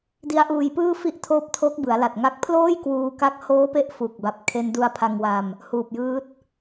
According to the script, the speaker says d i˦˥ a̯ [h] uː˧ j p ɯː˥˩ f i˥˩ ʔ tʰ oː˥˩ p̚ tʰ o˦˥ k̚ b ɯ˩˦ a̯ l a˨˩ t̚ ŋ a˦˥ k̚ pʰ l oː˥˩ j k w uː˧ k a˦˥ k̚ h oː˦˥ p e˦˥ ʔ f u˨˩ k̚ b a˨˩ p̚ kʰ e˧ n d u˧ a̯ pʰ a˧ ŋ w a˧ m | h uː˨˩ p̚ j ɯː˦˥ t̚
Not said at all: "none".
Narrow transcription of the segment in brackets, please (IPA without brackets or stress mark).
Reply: ʔ